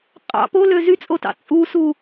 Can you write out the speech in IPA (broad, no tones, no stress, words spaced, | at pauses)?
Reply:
qʼɑ̰ polø zyt͡sʼotɑ̰ t͡sʼusu